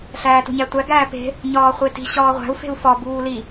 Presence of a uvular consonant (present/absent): present